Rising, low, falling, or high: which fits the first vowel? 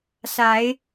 rising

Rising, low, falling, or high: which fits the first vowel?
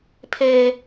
high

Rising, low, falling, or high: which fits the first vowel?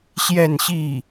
falling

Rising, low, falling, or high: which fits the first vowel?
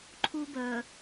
high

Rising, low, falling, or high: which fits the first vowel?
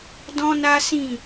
high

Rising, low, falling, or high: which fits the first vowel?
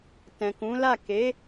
low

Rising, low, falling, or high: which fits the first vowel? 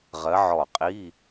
rising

